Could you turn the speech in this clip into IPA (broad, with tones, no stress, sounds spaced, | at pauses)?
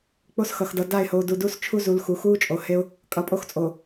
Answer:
k͡p o˦ s x ʌ˨ x d ʌ˨ d a˦˨ ɪ̯ h oː˨ d u˨ d u˦ s t͡ʃʰ u˦ z u˨ l x u˨ x uː˦ t͡ʃʼ o˨ h e˦ ʊ̯ | kʼ ʌ˨ pʼ o˦ x t͡sʼ o˨